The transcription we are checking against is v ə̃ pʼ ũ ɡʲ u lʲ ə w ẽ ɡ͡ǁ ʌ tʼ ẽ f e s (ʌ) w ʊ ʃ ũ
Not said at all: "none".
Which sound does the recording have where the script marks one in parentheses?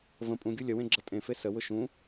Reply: ə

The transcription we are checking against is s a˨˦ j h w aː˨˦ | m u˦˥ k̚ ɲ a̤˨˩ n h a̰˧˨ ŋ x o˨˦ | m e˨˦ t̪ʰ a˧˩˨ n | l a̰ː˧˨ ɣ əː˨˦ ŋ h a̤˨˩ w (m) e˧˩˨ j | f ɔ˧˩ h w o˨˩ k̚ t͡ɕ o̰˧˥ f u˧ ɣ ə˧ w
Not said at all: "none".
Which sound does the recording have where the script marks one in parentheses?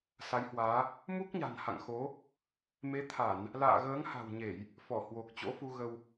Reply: ɲ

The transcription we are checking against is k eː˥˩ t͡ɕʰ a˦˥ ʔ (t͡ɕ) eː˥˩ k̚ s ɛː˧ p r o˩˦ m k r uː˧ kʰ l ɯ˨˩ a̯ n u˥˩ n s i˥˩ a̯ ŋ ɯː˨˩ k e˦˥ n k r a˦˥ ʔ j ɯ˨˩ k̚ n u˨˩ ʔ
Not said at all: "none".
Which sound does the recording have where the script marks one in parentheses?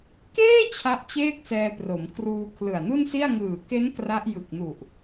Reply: t͡ɕ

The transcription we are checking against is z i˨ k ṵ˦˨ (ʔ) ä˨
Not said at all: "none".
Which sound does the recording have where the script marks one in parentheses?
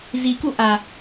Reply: ʔ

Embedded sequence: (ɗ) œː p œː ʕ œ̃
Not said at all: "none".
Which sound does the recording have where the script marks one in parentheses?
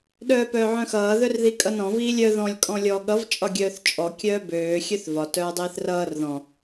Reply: ɗ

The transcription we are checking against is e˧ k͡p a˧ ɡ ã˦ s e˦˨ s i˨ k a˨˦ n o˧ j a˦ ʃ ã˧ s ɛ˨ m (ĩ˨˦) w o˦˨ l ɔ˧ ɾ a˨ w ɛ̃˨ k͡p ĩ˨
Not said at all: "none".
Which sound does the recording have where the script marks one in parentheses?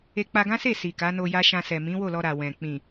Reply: ĩ˨˦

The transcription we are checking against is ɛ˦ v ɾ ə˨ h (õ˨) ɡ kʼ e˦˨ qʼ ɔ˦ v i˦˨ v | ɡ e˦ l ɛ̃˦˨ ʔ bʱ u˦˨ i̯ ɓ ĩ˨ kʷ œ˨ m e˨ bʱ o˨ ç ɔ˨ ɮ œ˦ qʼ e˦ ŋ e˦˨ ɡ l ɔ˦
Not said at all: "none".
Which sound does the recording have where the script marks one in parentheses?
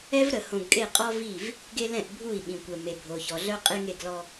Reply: õ˨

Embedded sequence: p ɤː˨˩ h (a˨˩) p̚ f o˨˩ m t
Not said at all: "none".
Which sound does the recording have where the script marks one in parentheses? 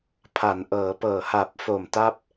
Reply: a˨˩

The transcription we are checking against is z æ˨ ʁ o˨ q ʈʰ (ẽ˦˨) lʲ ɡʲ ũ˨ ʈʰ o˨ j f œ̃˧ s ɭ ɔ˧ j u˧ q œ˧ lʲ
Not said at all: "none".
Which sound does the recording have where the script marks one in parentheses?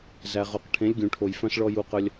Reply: ẽ˨˦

